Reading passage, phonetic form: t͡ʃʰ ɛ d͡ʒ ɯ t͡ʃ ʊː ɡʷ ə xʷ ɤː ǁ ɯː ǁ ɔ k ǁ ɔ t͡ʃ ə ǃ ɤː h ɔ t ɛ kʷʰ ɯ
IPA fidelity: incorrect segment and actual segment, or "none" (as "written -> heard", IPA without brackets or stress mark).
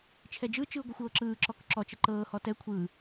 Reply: ʊː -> ɯː